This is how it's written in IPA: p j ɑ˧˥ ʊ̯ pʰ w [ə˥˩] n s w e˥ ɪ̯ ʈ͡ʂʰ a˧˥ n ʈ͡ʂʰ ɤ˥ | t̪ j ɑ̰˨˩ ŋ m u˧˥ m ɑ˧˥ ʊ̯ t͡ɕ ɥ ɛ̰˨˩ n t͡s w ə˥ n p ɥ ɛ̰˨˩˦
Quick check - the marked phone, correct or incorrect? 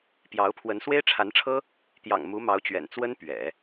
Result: incorrect